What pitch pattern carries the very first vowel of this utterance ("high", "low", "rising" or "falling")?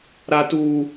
high